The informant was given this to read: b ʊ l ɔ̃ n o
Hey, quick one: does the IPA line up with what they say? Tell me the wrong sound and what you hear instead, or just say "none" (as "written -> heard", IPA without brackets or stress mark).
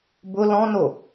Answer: none